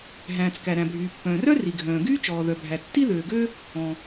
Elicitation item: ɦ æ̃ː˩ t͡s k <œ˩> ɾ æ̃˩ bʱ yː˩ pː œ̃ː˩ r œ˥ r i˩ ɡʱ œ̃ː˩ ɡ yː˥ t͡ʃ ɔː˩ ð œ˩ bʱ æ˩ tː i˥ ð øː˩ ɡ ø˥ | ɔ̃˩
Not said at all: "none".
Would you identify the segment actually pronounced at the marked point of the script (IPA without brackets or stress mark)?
æ˩